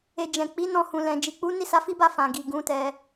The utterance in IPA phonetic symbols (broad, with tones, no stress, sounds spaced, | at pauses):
e˨ d͡ʒ ɛ̃˨ k͡p i˨˦ n ɔ̃˧ h ũ˨ l ɛ̃˨ d͡ʒ i˨ k͡p u˨˦ n i˦˨ s a˧ f i˦ b a˦˨ f ã˨ ɡ i˨ ɡ ũ˨˦ t ɛ˧